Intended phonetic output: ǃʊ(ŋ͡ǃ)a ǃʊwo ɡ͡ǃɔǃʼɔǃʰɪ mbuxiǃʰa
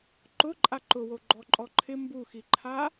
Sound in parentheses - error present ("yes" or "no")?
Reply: yes